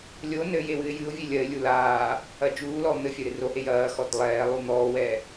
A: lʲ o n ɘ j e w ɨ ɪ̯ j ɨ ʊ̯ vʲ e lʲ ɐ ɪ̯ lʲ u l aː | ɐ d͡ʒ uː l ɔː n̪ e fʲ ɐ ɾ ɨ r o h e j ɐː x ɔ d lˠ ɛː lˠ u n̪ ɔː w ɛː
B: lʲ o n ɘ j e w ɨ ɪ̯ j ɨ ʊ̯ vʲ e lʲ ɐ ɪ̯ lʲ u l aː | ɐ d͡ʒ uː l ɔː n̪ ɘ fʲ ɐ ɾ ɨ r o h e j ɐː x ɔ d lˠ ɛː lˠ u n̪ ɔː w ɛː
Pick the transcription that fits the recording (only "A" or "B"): B